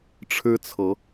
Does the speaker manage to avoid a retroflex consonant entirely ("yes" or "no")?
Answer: no